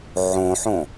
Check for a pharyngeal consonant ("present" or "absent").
present